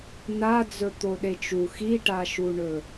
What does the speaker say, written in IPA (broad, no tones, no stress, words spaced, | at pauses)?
na d͡zɵt̪oɗet͡ʃu xiʈaʃuɳɵ